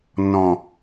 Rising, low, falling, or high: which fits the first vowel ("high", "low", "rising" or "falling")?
low